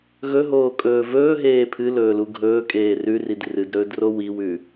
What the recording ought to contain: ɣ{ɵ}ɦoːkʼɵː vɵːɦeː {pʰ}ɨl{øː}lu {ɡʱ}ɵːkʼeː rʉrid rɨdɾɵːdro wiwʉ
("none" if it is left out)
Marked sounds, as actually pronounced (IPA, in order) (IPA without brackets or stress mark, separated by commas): ɵ, pʰ, ɵː, ɡʱ